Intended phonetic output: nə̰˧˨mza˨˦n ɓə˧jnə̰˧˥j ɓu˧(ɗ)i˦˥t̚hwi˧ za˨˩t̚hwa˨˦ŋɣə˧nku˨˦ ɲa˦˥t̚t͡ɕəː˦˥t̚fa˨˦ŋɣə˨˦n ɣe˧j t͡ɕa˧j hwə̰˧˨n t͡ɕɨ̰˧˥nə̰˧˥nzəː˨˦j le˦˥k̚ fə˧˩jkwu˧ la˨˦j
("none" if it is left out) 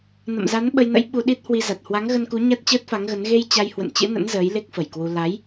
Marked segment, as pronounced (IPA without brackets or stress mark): ɗ